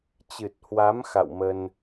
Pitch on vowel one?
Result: low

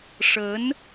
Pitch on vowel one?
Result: rising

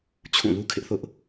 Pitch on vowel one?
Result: falling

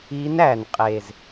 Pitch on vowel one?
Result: rising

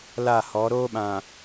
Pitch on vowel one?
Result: falling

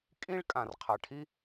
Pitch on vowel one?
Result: high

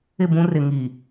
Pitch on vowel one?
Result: falling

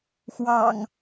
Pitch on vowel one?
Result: low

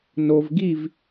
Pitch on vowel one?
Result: low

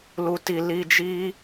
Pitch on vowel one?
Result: low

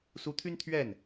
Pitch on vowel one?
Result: rising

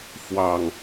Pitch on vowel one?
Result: low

